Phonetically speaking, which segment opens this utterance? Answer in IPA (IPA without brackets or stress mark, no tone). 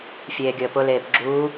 fʲ